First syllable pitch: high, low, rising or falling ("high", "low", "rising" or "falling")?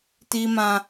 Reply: high